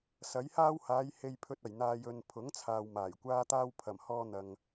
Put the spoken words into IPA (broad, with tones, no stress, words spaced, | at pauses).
sɐ˨˥jhaː˥whaː˨˧j he˨jpʰɵ˨t̚ ɐ˨˩jn̪aː˨jɵ˨n pʰʊ˨˥ŋt͡sʰaː˨w maː˨˩jkʷaː˥t̪aː˥w pʰɐ˨˩mhɔː˧n̪ɐ˨ŋ